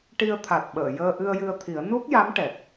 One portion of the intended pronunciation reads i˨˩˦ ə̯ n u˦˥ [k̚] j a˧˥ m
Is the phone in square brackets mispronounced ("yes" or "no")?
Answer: no